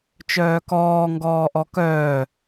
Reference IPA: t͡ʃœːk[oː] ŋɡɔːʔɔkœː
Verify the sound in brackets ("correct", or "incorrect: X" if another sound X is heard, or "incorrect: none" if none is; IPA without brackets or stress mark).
incorrect: ɔː